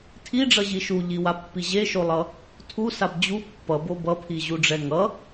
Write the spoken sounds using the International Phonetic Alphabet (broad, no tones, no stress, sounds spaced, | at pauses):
tʰ i ɖ͡ʐ ʌ ʑ i ʃ u ʎ i w a pː i ʑ e ʃ o lˠ ʌ | tʰ u s a b d͡ʑ u pː ʌ b o b ʌ pʰ i ʑ u ɖ͡ʐ ɛ ŋ ʌ